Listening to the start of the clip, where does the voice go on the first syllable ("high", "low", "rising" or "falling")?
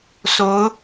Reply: rising